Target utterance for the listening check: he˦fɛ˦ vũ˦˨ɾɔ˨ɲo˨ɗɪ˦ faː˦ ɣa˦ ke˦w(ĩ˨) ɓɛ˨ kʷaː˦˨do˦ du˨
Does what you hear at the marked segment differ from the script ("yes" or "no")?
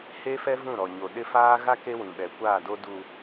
no